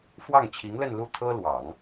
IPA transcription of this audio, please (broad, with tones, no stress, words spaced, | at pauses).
fwɑ˥˩ŋt͡ɕʰi˧˥ŋlə˥˧nlu˥˩ t̪ʰɤ˥lwɑ˨˩˦ŋ